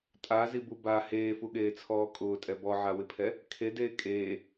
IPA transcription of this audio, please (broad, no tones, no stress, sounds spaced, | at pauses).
tʼ a z i b u b a h eː f u ɠ eː t͡sʰ ɔː kʼ ʊː tʼ ɛ b ɔ ʕ a w ɪ pʰ ɛ | kʰ e d eː kʼ eː